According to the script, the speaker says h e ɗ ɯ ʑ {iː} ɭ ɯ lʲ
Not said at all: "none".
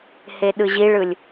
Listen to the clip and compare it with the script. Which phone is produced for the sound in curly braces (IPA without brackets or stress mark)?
i